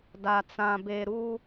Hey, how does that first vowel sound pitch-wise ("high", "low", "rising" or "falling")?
low